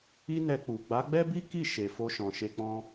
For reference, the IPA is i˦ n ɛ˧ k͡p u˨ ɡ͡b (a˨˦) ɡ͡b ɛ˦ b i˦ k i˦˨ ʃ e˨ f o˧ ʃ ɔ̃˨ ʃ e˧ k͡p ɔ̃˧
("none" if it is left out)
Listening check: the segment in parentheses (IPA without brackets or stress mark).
a˨˦